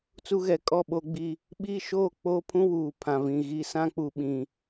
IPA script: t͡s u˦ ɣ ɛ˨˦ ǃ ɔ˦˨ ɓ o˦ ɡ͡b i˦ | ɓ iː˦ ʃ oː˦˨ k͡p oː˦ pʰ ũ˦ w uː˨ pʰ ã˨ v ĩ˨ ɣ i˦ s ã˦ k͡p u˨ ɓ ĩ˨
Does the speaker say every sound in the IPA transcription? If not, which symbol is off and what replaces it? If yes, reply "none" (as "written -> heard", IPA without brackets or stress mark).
ǃ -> kʼ